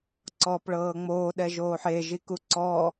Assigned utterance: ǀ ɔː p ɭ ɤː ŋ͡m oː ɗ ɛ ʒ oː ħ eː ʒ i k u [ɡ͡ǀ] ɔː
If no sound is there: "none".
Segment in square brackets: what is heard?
ǀ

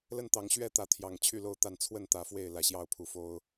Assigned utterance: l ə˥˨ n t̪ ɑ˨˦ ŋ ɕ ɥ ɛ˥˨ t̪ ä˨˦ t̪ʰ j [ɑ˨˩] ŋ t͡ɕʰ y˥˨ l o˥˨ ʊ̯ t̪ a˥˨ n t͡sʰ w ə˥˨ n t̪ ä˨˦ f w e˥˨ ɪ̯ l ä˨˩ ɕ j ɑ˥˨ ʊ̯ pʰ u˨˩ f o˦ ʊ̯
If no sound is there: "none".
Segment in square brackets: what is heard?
ɑ˨˩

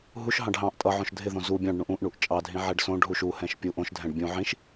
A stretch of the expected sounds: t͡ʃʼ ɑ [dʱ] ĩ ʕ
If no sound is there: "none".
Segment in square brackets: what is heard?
dʱ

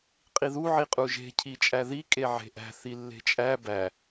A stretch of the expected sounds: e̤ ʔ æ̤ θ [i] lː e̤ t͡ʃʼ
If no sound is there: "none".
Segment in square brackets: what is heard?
i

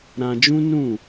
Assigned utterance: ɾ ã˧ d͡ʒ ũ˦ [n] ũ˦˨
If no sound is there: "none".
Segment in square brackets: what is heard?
n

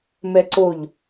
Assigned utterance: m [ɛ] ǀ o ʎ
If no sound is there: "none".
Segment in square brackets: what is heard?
ɛ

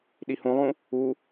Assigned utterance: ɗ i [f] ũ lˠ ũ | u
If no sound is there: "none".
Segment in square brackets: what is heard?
h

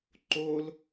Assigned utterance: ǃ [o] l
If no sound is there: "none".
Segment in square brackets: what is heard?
o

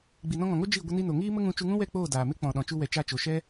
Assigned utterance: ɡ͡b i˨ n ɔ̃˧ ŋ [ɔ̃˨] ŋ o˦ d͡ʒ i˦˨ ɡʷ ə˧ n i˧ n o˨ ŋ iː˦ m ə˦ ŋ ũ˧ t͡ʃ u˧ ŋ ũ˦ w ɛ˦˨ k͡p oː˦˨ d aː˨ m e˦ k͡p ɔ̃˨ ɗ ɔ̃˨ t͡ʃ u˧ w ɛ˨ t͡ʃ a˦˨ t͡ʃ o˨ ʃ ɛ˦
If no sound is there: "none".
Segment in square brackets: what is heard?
ɔ̃˨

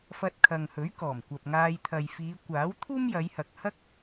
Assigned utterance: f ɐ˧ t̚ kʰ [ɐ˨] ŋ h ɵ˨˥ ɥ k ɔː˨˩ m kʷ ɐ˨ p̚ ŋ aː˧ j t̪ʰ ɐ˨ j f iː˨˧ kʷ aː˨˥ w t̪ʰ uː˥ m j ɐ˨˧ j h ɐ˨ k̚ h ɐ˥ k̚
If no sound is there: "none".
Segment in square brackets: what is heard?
ɐ˨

